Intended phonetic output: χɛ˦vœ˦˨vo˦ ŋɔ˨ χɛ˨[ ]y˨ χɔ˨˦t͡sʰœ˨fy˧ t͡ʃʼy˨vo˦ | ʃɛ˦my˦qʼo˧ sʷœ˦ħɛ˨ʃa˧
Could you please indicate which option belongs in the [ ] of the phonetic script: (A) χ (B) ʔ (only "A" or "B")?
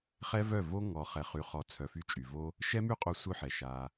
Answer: A